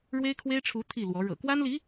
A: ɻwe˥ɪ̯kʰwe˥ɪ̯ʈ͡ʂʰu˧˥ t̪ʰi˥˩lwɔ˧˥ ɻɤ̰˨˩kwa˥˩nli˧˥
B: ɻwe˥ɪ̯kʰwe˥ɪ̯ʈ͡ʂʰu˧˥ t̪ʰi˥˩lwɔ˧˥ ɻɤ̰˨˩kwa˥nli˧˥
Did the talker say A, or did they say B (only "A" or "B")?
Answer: B